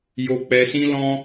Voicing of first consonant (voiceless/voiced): voiced